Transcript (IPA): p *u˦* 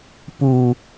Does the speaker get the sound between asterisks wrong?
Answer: no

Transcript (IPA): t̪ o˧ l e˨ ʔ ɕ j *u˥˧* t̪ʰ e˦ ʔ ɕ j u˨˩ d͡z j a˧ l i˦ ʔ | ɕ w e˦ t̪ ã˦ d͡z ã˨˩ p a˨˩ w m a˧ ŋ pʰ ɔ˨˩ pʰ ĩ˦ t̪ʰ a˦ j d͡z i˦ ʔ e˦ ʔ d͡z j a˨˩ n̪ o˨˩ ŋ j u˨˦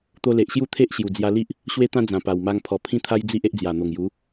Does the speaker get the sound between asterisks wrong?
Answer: no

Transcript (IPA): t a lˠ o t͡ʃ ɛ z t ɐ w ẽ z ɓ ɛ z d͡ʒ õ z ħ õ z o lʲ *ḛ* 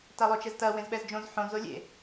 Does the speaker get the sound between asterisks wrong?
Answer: no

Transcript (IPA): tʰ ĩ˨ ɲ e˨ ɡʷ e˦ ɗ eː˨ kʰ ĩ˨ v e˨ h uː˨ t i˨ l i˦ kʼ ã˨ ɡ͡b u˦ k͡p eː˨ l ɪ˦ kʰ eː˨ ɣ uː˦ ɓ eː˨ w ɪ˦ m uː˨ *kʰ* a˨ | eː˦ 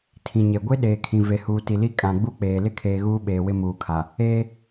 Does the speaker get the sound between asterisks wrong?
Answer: no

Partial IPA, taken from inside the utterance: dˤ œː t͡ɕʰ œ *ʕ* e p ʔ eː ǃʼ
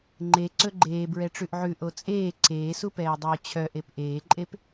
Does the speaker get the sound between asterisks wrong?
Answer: yes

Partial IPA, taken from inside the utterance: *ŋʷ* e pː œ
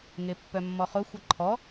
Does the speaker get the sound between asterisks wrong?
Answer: yes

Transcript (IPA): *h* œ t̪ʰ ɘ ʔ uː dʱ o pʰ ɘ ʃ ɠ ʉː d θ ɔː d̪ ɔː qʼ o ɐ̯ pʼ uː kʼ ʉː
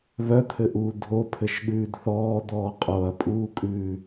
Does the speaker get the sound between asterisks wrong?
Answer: yes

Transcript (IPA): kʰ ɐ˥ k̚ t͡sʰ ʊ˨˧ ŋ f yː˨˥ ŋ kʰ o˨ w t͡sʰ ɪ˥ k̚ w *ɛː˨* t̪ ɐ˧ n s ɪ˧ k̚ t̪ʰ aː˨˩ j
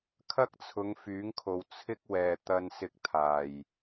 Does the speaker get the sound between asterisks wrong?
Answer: no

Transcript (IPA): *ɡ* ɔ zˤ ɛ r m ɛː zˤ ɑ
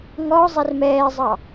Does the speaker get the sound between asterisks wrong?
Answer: yes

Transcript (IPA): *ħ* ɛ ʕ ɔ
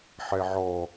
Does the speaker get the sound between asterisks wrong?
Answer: no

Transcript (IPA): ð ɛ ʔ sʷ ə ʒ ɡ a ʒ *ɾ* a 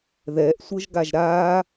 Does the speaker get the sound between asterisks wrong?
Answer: no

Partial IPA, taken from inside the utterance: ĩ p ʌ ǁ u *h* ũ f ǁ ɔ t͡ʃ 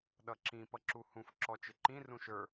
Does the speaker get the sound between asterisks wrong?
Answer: no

